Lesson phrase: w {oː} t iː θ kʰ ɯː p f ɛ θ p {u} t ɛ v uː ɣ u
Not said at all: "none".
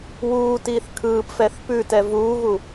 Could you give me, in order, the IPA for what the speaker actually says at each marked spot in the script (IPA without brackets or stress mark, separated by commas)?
uː, ʉ